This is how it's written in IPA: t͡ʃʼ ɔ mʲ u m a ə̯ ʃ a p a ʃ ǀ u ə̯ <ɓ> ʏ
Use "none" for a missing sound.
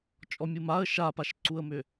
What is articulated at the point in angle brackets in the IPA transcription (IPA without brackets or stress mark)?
m